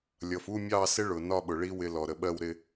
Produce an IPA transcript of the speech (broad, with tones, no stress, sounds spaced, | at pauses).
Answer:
lʲ ʌ˨ f u˥˧ mʲ ɑ˥˧ s ɪ˦˥ ɭ ʊ˨ n ɒ˥˧ ɓ ʊ˨ ɭ i˦˥ w ɪ˦˥ l ɔ˨ ɾ ə˨ ɓ ɜ˥˧ w ɾ ɪ˥˧